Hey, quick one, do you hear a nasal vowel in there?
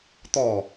no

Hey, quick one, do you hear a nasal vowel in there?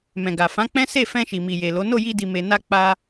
yes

